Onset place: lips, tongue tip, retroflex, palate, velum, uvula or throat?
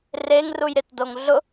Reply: tongue tip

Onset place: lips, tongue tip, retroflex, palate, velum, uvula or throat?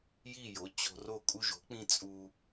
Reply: palate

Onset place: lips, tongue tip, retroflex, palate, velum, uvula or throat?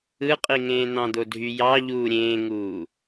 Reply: uvula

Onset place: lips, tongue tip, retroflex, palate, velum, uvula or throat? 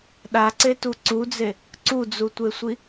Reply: tongue tip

